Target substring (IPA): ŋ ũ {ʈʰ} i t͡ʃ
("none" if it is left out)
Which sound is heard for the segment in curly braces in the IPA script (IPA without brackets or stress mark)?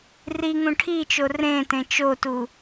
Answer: ʈʰ